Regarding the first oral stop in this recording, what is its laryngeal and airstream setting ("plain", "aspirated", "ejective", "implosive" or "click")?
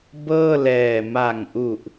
plain